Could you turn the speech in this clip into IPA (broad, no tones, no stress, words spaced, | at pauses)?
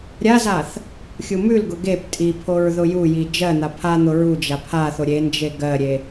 ɾʲazaθ | xʲumʉlɡʊ ɡep tʼipʰoɹ ðʊjuji d͡ʒɜn̪a pʰan̪ʊ ɹu d͡ʒapʰaθo ɾʲend͡ʒe ɡɜɾʲe